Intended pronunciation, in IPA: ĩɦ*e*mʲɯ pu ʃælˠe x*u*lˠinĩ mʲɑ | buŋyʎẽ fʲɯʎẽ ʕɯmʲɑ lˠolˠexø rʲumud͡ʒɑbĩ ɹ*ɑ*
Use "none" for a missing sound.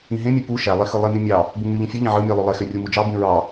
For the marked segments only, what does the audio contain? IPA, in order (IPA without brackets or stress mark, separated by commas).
ẽ, ɯ, ɑ